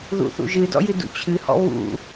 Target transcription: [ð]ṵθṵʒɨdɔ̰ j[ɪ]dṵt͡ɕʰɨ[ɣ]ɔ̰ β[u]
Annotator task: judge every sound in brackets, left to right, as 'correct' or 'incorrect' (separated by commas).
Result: correct, incorrect, incorrect, incorrect